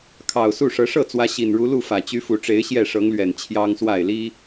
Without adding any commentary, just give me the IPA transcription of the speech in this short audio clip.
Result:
kʰɑ˨˩ʊ̯ su˥˨ʂɤ˨˦ ʂɤ˥˨t͡swä˨˦ ɕi˨˩nɻu˨˦lu˥˨ fä˨˩t͡ɕy˨˦ fu˨˩ʈ͡ʂe˨˦ɪ̯ ɕjɛ˥˨ʂɤ˨˦ŋlɥɛ˨˩n t͡ɕʰjɑ˦ŋswa˥˨ɪ̯li˦

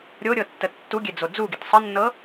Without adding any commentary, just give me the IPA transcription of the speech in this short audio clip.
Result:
ɾʲoɾʲɤtːə tːuɡʲed͡zo d͡zuɡit sˤənːɤ

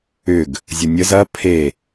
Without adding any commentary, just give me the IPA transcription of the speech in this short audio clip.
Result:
ʏɡ | zʲʊnʲəz ɐ pʰe

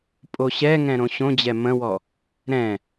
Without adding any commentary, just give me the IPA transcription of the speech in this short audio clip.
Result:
pʼoɕɛŋɛ̃ ɾõɕõd͡ʑɛ mə̃wɔ | ɾɛ̃

